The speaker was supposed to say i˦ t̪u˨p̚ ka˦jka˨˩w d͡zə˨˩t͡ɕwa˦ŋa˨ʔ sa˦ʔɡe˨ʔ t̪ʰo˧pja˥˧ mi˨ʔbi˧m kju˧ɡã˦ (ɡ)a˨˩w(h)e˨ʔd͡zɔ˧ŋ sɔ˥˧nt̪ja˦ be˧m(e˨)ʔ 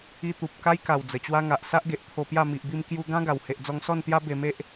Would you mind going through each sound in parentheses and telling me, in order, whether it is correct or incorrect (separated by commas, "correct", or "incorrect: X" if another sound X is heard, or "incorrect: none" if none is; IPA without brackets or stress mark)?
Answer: correct, correct, incorrect: e˦